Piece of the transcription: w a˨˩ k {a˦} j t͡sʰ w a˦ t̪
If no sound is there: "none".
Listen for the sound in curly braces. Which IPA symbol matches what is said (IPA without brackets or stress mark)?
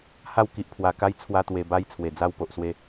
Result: a˦